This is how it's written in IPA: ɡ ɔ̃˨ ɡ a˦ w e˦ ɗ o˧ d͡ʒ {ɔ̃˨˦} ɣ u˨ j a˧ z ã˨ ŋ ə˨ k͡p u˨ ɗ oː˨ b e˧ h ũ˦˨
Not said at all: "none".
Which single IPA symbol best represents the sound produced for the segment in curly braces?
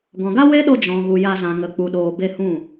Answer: ɔ̃˨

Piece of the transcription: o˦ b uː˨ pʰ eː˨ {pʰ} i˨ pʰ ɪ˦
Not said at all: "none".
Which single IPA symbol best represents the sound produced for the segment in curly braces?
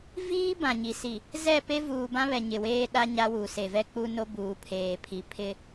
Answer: pʰ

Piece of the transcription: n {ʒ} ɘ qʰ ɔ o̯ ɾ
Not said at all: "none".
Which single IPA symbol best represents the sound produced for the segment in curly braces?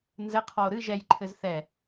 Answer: z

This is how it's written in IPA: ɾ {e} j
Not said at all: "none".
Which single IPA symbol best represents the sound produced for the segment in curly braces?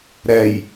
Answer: ɛ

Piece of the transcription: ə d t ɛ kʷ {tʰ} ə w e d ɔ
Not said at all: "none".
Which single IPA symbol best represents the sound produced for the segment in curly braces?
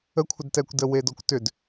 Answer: d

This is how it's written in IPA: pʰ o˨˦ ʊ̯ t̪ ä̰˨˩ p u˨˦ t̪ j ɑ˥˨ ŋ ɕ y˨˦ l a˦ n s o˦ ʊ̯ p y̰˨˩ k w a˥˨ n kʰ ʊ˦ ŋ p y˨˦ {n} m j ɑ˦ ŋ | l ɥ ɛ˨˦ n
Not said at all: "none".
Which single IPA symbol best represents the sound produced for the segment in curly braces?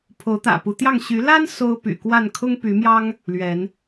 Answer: none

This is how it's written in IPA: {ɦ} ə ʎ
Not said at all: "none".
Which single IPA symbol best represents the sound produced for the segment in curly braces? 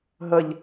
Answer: ɦ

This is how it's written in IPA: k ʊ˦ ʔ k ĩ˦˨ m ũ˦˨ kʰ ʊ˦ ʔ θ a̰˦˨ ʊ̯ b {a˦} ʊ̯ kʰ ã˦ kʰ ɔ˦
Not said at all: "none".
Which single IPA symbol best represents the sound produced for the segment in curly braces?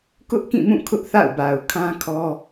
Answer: a˨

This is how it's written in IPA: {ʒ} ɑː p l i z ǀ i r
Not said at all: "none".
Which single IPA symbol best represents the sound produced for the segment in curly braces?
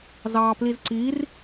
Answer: z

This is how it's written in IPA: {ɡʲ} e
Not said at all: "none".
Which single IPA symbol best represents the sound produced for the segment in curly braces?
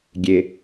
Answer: ɡʲ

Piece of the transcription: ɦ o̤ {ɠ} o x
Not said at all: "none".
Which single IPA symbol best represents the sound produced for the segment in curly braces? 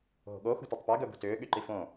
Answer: ɠ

